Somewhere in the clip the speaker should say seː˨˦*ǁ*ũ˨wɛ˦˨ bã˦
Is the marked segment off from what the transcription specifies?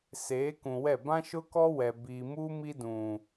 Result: yes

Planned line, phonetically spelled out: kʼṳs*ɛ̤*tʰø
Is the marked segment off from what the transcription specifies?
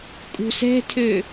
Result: no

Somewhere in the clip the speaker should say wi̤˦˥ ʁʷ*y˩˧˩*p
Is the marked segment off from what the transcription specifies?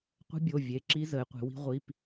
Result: yes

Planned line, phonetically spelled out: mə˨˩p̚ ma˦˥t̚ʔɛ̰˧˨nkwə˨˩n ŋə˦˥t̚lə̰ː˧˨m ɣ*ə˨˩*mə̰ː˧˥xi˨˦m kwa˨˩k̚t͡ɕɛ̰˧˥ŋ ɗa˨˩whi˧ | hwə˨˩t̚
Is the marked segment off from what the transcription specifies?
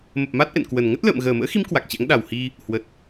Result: yes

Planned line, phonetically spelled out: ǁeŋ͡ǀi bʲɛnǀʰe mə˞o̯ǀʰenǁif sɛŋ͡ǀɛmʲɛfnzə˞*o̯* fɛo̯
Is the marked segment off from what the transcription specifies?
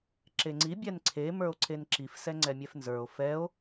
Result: no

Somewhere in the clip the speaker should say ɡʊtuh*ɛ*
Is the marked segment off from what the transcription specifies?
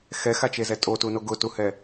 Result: no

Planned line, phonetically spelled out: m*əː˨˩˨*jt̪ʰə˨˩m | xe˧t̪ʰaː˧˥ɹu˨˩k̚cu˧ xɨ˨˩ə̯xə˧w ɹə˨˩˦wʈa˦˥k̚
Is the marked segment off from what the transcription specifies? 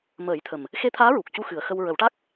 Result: yes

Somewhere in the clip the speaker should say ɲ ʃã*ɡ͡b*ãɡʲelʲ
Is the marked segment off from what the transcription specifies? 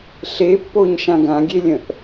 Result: yes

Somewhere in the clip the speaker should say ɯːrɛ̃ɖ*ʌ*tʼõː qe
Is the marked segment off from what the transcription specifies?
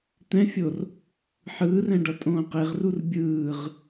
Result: no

